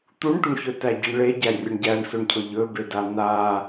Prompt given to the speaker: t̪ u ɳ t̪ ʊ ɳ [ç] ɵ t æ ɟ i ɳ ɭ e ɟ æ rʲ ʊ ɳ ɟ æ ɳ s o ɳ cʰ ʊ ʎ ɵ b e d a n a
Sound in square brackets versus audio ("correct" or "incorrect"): correct